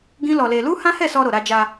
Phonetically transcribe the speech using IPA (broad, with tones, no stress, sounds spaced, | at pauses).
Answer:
ɡ ĩ˦ l ɔ˧ l e˧ l u˦ h ã˦ h ɛ˦˨ s ɔ˧ ɾ o˨ ɾ a˧ d͡ʒ a˧